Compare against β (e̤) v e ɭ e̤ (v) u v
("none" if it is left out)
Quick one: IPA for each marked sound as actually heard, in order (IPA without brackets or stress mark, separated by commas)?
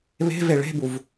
e̤, b